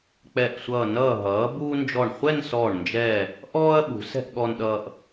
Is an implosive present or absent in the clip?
present